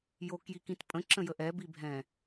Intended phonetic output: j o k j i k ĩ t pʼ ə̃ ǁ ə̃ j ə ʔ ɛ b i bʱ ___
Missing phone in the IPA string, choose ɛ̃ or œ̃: ɛ̃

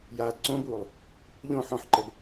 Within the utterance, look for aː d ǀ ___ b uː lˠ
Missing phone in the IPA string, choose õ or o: õ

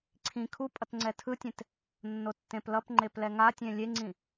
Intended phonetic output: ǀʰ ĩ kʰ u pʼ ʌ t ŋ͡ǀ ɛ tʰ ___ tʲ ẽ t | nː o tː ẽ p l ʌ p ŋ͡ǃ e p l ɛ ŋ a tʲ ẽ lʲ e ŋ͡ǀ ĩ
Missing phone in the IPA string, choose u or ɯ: ɯ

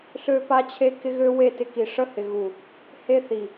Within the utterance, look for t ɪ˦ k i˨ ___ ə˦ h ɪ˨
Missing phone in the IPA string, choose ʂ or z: ʂ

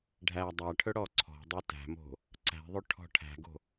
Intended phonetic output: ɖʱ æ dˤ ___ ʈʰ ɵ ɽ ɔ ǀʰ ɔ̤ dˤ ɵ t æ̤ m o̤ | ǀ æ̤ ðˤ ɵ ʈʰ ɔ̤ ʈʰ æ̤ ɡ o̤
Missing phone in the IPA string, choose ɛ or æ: æ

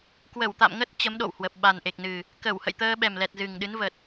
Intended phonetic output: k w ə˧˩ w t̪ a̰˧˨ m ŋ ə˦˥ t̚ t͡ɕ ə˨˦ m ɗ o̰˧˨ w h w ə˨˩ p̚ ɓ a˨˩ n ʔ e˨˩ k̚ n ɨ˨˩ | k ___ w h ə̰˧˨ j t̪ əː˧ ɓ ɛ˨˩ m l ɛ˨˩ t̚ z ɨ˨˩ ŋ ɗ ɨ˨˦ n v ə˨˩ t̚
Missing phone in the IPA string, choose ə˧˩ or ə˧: ə˧˩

